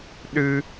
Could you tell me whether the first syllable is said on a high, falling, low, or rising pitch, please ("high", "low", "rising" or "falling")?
high